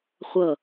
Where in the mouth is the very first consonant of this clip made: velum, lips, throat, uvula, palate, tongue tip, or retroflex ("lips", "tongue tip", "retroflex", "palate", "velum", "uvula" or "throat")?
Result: uvula